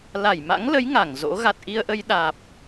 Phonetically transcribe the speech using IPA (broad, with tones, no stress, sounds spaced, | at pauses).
l a˧˩ j m a̰˧˥ ŋ l ə˨˦ j ŋ a˧˩ ŋ z o̰˧˥ ɣ a˨˩ t̚ ʔ i˧ ə̯ ʔ ə˧ j ɗ aː˨˩ p̚